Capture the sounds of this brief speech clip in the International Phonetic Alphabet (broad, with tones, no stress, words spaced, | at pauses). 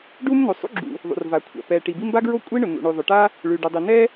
ɖu˥m no˩sˤṵ˥ɡ͡ǁṵ˩ | ðˤṵ˩rva˩kʷʰa̰˩ pɛ˩ ʈi˩bi˥m ba˥ɡɹo˥ kʷʼi˥ɳʊ˩ nṵ˩ɳʉ˩ðˤʊ˩ʈa˥ | ɭʉ˩ɖu˩ dˤi˩nɛ˥